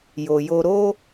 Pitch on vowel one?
low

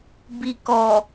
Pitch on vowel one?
low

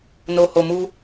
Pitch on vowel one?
low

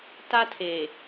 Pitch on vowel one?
high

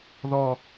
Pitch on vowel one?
high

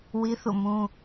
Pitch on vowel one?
high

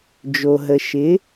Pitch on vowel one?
low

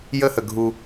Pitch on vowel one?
high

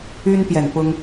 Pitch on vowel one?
high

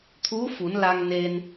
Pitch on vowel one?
rising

